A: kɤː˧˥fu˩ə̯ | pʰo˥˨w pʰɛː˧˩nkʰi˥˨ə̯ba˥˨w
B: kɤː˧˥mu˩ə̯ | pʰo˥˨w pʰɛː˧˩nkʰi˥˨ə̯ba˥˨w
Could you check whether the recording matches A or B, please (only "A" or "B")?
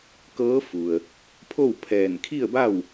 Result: A